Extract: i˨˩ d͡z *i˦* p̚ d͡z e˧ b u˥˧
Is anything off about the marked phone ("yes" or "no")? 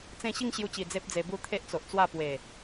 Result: yes